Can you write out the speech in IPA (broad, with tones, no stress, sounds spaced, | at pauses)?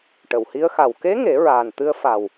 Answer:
ʈ ə˨˩˨ w h i˧˥ ə̯ x a˨˩ w k e˧˥ ŋ e˨˩˦ ɹ aː˨˩ n t̪ ɨ˧ ə̯ f a˨˩ w